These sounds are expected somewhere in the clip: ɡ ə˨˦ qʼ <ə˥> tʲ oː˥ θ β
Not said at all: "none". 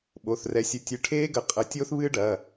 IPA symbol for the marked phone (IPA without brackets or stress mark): ə˨˦